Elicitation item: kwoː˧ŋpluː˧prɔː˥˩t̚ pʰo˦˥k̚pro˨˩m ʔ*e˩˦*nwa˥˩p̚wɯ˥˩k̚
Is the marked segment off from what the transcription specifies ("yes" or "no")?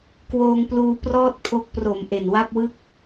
yes